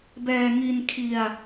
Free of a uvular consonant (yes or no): yes